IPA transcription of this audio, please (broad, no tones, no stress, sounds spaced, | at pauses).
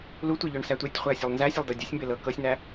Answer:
l u tʷ e ʎ œ ɳ s æ tʷ e tʲ χʷ æ ɐ̯ sʲ œ lˠ n z æ sʲ œ lˠ d ɤ dʲ ɤ sʲ m b e l ɤ k ɤ sʲ n æ